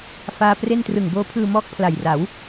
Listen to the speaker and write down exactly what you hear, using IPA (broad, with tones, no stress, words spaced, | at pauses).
faː˥˩ pre˥˩n trɯ˨˩ŋboː˦˥pʰɯː˧mɔː˦˥k̚ pʰla˨˩jra˩˦w